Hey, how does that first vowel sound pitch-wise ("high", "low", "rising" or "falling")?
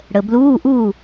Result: low